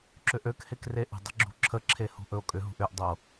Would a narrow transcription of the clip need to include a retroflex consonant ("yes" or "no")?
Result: no